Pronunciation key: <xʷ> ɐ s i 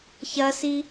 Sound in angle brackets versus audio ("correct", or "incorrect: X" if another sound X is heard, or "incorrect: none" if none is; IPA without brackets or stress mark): incorrect: ç